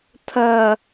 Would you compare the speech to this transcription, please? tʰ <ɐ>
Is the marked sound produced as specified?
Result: yes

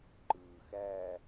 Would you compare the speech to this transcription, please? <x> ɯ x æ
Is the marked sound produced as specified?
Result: no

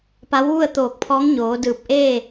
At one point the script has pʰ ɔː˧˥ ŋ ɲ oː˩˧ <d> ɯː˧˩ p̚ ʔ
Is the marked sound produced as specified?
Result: yes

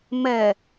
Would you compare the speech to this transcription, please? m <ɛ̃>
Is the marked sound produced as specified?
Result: no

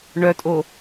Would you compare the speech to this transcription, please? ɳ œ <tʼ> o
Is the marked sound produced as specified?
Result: yes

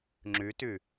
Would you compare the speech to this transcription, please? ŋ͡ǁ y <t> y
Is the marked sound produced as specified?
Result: yes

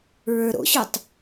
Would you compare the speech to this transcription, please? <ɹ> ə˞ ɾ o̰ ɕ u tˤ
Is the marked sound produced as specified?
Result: yes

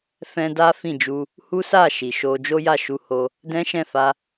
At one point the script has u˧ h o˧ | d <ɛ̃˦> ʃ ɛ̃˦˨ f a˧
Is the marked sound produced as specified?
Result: yes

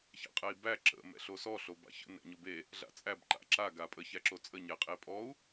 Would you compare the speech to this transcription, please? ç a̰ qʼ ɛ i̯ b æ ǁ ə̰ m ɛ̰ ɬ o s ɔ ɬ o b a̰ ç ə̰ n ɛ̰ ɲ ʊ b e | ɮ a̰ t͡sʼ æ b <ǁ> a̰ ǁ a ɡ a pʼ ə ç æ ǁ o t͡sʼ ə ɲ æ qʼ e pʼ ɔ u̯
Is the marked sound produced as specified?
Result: no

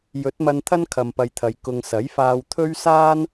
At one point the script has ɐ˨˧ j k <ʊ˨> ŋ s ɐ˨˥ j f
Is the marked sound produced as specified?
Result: yes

